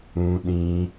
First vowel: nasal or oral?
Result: nasal